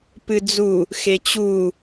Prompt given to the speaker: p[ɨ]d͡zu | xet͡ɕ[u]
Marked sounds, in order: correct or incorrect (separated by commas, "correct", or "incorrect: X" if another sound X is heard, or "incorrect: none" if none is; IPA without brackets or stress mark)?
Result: correct, correct